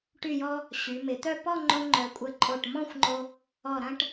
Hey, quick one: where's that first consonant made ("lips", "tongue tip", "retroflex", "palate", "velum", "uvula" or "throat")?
retroflex